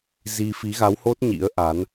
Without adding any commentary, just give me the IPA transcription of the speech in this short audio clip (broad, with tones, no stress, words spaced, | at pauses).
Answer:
zi˧ fi˨˦ɣa˨˦who˦˥t̚ ɲḭ˧˥ə̯ʔa˨˦n